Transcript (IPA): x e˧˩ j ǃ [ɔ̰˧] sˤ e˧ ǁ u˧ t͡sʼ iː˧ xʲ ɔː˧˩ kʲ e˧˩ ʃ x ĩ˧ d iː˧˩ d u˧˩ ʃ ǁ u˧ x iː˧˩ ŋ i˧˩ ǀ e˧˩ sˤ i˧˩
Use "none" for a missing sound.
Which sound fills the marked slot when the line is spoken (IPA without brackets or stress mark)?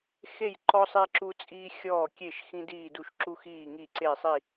ɔ˧